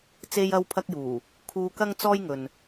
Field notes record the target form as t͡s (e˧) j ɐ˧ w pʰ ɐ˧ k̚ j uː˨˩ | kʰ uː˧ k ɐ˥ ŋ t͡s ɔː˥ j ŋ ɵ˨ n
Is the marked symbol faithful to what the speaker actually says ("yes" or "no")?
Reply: yes